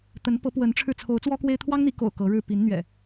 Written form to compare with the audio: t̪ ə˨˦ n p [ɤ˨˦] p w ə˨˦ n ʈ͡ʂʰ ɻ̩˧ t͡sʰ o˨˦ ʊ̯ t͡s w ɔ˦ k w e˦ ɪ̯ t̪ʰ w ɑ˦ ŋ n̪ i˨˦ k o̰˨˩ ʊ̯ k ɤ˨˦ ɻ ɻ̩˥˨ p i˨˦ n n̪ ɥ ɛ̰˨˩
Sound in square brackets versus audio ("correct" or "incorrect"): correct